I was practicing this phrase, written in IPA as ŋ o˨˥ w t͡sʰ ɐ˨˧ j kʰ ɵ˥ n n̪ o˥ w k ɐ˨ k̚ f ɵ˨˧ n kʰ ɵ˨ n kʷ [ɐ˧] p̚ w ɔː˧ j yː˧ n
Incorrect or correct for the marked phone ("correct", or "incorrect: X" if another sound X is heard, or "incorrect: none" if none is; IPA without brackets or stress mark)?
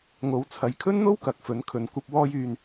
correct